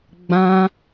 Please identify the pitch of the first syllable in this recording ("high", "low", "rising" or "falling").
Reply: high